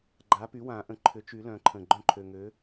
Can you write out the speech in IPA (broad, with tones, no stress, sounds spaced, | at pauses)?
ɡ͡ǃ a˩˥ p y˩˥ w ã˨˩˦ ʔ ə̃˨˩ ǃʰ ʏ˨˩˦ t͡ʃ y˨˩˦ l œ̃˨˩˦ ǃʰ ə̃˨˩ ɡ͡ǃ œ̃˥˩ ǃʰ ø˨˩ ŋ ø˩˥